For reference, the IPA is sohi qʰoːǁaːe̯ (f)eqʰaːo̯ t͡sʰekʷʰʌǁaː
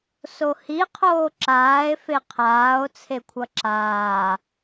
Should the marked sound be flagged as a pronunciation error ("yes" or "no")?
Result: no